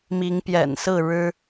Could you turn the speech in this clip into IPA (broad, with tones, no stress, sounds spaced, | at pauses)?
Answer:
m i˨˦ ŋ p j ɛ̰˨˩ n s ɹ̩˥˨ ɻ ɻ̩˦